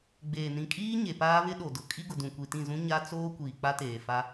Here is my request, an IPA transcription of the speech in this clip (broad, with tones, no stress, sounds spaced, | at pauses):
ɡ͡b eː˨ n ĩ˨ kʼ iː˦ ɲ e˨ p aː˦ β ɪ˦ ɗ o˨ d ʊ˨ kʼ i˦ ɡ ʊ˨ d ũ˨ kʷ i˨ t ĩ˦˨ z ũ˦ ɲ a˦ t͡s oː˦ kʷ iː˨ k͡p a˦ t eː˨ f a˦